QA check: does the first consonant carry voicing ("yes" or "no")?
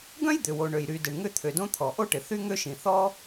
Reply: yes